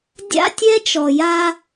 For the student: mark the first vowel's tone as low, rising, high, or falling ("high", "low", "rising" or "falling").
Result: high